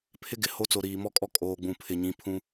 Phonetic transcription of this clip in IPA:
pʰ ɪ˦ ɡ ɪ˨ h o˦ t͡s o˨ ɾ iː˨ m ɔ˦ kʼ ɔ˦ kʼ oː˨ ɡ͡b ũ˨ pʰ ɪ˨ ɲ ĩ˨˦ pʰ ũ˦

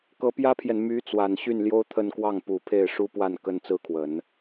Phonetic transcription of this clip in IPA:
k ɤ˧˥ p j ä˥ pʰ j ɛ˨ n m y˧˥ t͡s w a˨˩ n ɕ y˥˩ n l j o˥ ʊ̯ t̪ʰ ə˥˧ n k w ɑ˥˩ ŋ p u˨˩ pʰ e˥˩ ɪ̯ ʂ u˥ p w a˥˩ n k ə˥ n t͡s ɹ̩˥ kʰ w ə˨˩˦ n

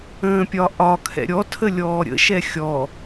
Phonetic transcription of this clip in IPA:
ə̃ː pʲ ɒ ʔ ɒ kʰ ɛ̰ ɾʲ ɔ tʰ ə lʲ ɔː ɾʲ ə̰ ʃ ɛ xʲ ɔ

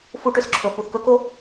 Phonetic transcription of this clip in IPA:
f u˦ ʈ ʏ˨ s ǁʰ ɵ˨ f u˨ θ k ɵ˦ k o˦

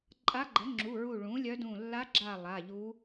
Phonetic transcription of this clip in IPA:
ǃʼ a˧˥ ɡ͡ǃ ə˩˥ ŋ͡ǁ u˩˧˩ ɹ u˧˩ ɭ ũ˩˥ lʲ œ˧˥ d ũ˧˩ lː a˧˥ ɡ͡ǁ a˧˩ lˠ a˩˧˩ ʎ u˧˥

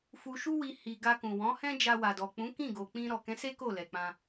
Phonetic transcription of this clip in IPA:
f u˧ ʃ u˦ w i˧ h i˧ ɡ a˧ k ũ˨ w ɔ̃˨˦ h ɛ̃˦ d͡ʒ a˧ w a˨ d ɔ˨ k͡p ũ˨˦ k ĩ˦˨ ɡ o˨ k͡p ĩ˧ ɾ ɔ˨ k ɛ̃˨˦ s e˦ k o˦˨ l ɛ˨ k͡p ã˧

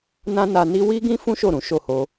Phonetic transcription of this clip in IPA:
n ã˦ n a˧ n i˦ w i˦ ɡ ĩ˦ f ũ˦ ʃ o˦˨ ɾ ũ˨˦ ʃ o˦˨ h o˧

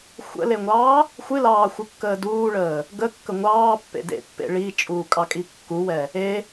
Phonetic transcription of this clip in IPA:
xʷ ə̰ l e ŋʷ ɑː | xʷ ɨ l ɑː xʷ ɨ kː əː d uː ɭ əː | ɡ ə kː ə ŋʷ ɑː pː ḛ d ḛ pː ḛ ɭ i t͡ʃʼ uː kʼ ɑ kʼ i kː u w ɛ | e

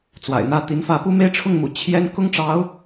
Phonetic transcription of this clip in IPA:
t͡s w a̰˨˩ ɪ̯ n̪ ä˥ t̪ i˧˥ n f ä˥˧ p u˥˧ m e˥˧ ɪ̯ ʈ͡ʂʰ ʊ˥˩ ŋ m ṵ˨˩ t͡ɕʰ j ɛ˥ n k ʊ˥ ŋ ʈ͡ʂ ɑ˧˥ ʊ̯

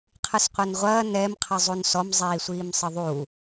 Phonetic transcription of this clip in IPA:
qʰ ɨ s qʷ ɛ n ʁʷ ɐː n ɛ m qʰ ɨ zˤ u n s ɔ m zˤ iː sʷ iː m sˤ ɨ ðˤ u

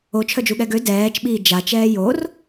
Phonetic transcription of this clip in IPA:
o t͡ʃʰ œ d͡ʒ u ɠ ɛ ɡ ø d ɛː t͡ʃ ɓ iː d͡ʒ a t͡ʃ ɛː j o r

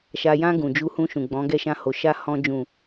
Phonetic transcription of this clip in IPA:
ʃ a˨ j ã˧ ɡ ũ˨ d͡ʒ u˧ h ũ˧ ʃ ũ˨ ɡ͡b ɔ̃˨˦ ɡ ɛ˦˨ ʃ ã˧ h o˨ ʃ a˧ h ɔ̃˧ d͡ʒ ũ˨

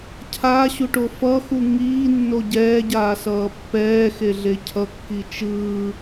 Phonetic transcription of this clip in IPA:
cʰ a ɕ u ʈ o f ʌ x u ŋ iː nː o ɟ ɛː ɟ aː s ʌː pː ɛː x e ɮ e cʰ ʌ kː i t͡ʃ ɯː

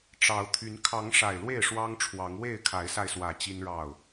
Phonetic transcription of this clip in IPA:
ʈ͡ʂ ɑ˨˦ ʊ̯ t̪ʰ y˨˦ n kʰ ɑ˨˦ ŋ ʂ a˨˩ ɪ̯ l w e˥˨ ɪ̯ ʂ w ɑ˦ ŋ ʈ͡ʂʰ w ɑ˨˦ ŋ w e˥˨ ɪ̯ kʰ a˨˦ ɪ̯ s a˧ ɪ̯ s w ä˨˩ t͡ɕ i˦ n ɻ ɑ˥˨ ʊ̯

